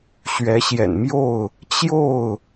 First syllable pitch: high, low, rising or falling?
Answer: rising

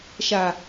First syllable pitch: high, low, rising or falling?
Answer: low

